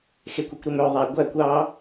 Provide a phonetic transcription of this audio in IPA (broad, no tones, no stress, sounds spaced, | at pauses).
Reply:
x e kʷ i kʷ ɾ y m ø ðˤ æ ɡʷ æ kʷ ɑ